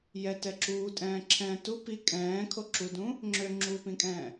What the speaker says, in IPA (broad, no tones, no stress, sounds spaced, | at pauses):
j ɛ t ɛ ǁ uː tʼ ɛ̃ː ǁʰ ɛ̃ː t u p i kʼ ɛ̃ː kʰ o ǁ u d ũ | ŋ͡ǁ ø ŋ͡ǁ uː p ĩ kʼ ɛ̃ː